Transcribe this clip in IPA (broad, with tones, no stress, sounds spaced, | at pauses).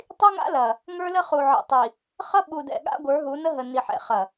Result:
tˤ i˦ ŋ a̰˦ l ɐ˨ | ŋ ə˞˦ l ə˦ χ u˨ ʕ ə̰˨ tˤ i˨ | χ ʌ˦ ɓ u˨ d ɛ̰˨ ɠ a̰˦ ɡʷ ə˞˨˦ ɦ u˨˦ n ə˦ ɦ ə˨ n i˨ ħ ɛ̰˨ χ ɐ˨